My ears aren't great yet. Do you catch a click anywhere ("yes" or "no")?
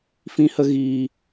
no